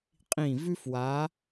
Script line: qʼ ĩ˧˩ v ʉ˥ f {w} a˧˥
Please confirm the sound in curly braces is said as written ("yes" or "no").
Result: yes